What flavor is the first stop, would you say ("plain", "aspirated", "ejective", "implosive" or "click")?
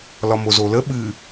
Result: implosive